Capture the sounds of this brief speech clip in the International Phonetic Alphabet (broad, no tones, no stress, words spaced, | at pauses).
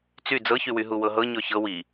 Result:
t͡sy d͡zɤçywy ɦuwɤɦɤ ɲɔçɤ wi